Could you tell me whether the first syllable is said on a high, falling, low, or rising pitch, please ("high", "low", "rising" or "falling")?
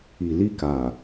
low